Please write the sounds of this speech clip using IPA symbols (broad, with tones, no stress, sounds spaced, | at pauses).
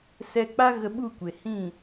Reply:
s ɛ˧ k͡p a˦ ɣ ə˧ ɓ u˦˨ kʷ e˨ h ĩ˦˨